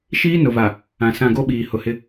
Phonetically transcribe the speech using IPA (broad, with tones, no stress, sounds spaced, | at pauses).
ʃ iː˦ n ʊ˨ v a˨ | ã˨ s ã˦˨ ɡ o˦ ɓ iː˨ h ʊ˨ h ɪ˦